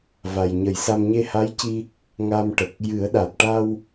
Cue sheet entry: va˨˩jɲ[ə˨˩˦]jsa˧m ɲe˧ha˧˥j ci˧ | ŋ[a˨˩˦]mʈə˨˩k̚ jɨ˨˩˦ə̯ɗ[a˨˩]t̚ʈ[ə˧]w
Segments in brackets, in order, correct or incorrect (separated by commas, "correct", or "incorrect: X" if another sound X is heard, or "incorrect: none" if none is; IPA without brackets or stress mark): correct, incorrect: a˧, correct, incorrect: a˧